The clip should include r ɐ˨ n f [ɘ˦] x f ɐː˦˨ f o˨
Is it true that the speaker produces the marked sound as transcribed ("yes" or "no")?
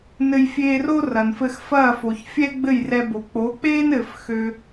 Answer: no